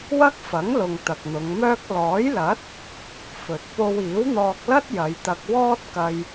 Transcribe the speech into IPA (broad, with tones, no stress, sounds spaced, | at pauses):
w ɐ˥ k̚ f ɐ˨˥ ŋ l ʊ˨ ŋ t̪ ɐ˨ k̚ n̪ ʊ˨˧ ŋ m œː˥ k̚ l ɔː˨˥ j l ɐ˨˥ t̚ | f ɵ˨ t̚ p o˧ w iː˨˥ w n̪ ɔː˧ k̚ l ɐ˥ t̚ j ɐ˨˧ j t̪ ɐ˧ k̚ w ɔː˥ t̚ k ɐ˧ j